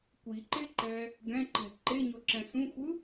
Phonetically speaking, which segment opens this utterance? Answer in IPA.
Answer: kʷ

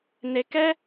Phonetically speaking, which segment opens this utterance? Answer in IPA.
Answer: n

